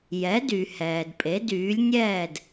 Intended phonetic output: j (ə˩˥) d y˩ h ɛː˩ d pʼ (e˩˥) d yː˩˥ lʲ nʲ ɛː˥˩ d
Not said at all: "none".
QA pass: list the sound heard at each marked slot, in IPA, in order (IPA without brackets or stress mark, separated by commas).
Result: ɛ˩˥, e˩˥